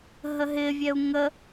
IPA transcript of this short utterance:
ɦ ə ɦ ɪ vʲ ɛ u̯ ŋ ə

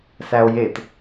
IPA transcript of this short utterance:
s æ o̯ j e t

